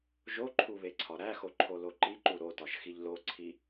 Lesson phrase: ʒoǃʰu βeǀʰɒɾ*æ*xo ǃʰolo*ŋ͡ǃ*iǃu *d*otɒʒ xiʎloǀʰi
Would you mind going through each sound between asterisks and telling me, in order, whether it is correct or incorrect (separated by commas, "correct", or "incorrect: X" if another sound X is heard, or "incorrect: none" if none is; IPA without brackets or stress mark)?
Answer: correct, incorrect: ǃ, incorrect: ɾ